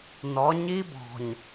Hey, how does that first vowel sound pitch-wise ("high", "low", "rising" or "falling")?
rising